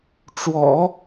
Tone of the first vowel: low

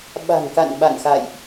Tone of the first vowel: low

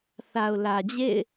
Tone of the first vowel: low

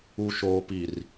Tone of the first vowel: low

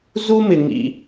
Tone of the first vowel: high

